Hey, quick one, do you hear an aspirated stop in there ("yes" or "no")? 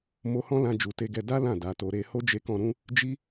no